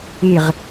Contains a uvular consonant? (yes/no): yes